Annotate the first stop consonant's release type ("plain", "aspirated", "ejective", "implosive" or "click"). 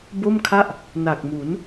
plain